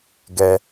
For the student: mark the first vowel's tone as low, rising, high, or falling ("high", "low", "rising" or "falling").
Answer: high